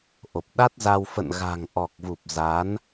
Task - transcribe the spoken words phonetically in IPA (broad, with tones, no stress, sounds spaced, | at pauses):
ʔ o˨˩ p̚ ɗ a˦˥ t̚ z a˧ w f ə̰˧˨ n ɣ a̤˨˩ ŋ ʔ ɔ˨˩ k̚ v u˨˩ p̚ z a˨˦ n